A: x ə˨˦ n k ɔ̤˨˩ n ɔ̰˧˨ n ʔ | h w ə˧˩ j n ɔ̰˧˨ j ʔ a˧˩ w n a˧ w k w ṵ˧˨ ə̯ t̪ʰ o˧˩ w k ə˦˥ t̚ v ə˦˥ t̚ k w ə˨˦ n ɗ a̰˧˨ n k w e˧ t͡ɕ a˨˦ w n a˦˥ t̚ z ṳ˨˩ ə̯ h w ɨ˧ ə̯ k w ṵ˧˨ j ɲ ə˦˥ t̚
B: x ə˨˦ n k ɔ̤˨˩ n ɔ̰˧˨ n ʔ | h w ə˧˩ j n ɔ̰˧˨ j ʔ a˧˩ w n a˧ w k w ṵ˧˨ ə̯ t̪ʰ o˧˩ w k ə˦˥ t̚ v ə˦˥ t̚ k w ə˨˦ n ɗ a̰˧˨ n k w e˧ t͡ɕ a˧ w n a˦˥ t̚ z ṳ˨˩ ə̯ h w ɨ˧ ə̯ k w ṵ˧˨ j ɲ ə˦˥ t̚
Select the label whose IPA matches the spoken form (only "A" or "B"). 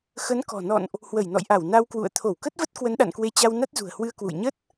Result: B